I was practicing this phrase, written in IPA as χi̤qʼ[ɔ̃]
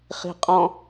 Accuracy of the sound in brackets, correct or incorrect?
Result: correct